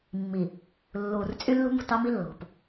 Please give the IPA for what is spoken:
mː i˨ | lː uː˨ r t͡sʼ y˦ lː ṳ˦ m ṳ˨ t ɑ˦ m i˦ lː o̤˨ p

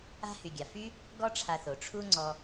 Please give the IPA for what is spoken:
a̤˦ h y˨ ɡʲ a˨ f y˦ | ɡ ɔ˦ ʈ͡ʂʰ a˧ θ o˨ ʈ͡ʂʰ u˦ ŋ͡ǀ ɔ˧

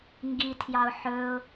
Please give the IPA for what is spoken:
ŋ ɡ i tʰ j ɑ ʊ̯ ħ ɵ ʊ̯

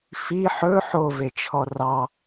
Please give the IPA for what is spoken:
f i ħ ɵ ħ o v e t͡ʃʰ ɔ r ɑ

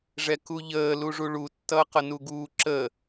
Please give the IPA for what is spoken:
ʐ ɛ k u ʎ əː l u ʐ u ɭ u tː ʌː q ʌ n u ɡ uː ǁ əː

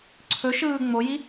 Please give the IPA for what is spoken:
ǀʰ ɵ ʃ ɯː ŋ͡m o j i

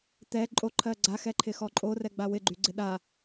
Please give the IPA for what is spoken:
t̪ ɛ ǃʼ o ǃʰ ɜ ɡ͡ǀ a x ɛ ǃʰ ɪ x ɔ ǃʼ o r ɛ ɡ͡b a w ɪ ɡ͡ǃ y ɡ͡ǀ ɪ ɗ a

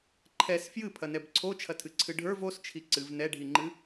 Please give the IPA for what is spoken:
ǃʰ ɛ s f j ɨ pʰ ɐ n ɛ b ǀʰ o t͡ʃʰ ɐ tʰ ɨ ǀʰ ɨ ɖʱ ə˞ v o s t͡ʃʰ i ǀ ɨ v n ɛ ɖʱ i ŋ͡ǃ ɨ

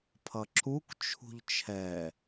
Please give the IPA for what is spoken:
pʰ ʌ ǁ u k t͡ʃʰ ṳ ʎ t͡ʃʰ ɛ

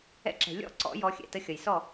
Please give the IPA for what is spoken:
ɛ̰˨˥ ǁ ɛ̤˩ lʲ ɔ̰˥˩ ǀ ɔ̰˨˩˦ j ɔ˨˥ xʲ ɛ̰˩ t ə˧˥˧ xʲ ʌ˩ j s ɔ˥˩

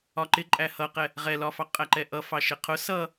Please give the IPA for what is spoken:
ɒ ǃ ɪ ǃʼ æ h ʌ q ɛ | ʁ ɛ l ɒ f ɑ qʼ æ ǃ ɛ ʔ ʌ f ɑ ʃ ɪ qʰ ʊ s ʌ

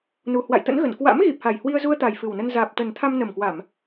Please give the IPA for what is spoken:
n u˨˩ h w a̰˧˨ j t̪ ə̰˧˥ n ɣ ə˧˩ n k w a̰˧˥ m ɣ i˨˩ p̚ h a˨˩ j h w i˧ ə̯ z u˧ ə̯ t̪ a˨˩ j f ɨ˨˩ w n ə˧ n z aː˨˩ p̚ t̪ ə˨˩ n t̪ʰ a˧ m n ə˨˩ m k w a˧˩˨ m

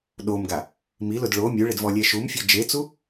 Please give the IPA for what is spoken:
ɗ o m ɡ a | m i l ʊ d ɭ o mʲ u ɭ ɪ d v ɔ lʲ ɛ ʃ u m fʲ ɔ d͡ʒ e t͡s u

